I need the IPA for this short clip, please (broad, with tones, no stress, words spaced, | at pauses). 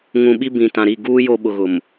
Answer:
ŋũ˨ɓi˦ bĩ˨tã˨ɾi˦˨ ɡuː˦ jo˦ɓʊ˨ɣʊ˨m